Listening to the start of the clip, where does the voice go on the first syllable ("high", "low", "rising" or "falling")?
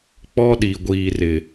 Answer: high